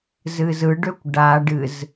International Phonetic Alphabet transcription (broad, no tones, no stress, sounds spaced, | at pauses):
z ɨ z ɯ ɖ ø kʷ ɖ a ɖ ɨ z